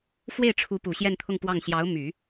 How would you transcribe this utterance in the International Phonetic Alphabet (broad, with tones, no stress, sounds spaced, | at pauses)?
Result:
f w e˥˩ ɪ̯ ʈ͡ʂʰ u˧˥ p u˨˩ ɕ j ɛ˥˧ n t̪ʰ ʊ˥˧ ŋ p w ɑ˥˩ ŋ ɕ j ɑ˧˥ ʊ̯ m y˨˩˦